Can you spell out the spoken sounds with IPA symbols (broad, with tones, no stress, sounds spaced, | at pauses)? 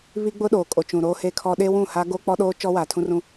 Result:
β i˦ ɡ͡b ʊ˦ ɗ oː˨ kʼ o˨ t͡ʃ ũ˨ ɾ oː˦ h e˦ kʰ ɔ˦ ɗ eː˦ w ũ˦˨ h aː˦ ɡ oː˦ k͡p ɔ˦ ɗ oː˦ t͡ʃ ɔ˦ w aː˨ tʰ ũ˦ r ũ˦